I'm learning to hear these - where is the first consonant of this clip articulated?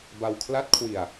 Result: lips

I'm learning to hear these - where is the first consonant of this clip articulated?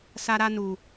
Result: tongue tip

